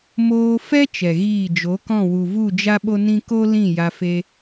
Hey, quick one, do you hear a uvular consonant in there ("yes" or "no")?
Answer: no